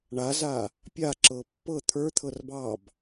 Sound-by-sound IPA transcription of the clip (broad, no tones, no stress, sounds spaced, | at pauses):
ɳ a z a | pʲ a ǁ ɤ pː ɤ t̪ʰ ə˞ t̪ʰ ɤ r b ɑ b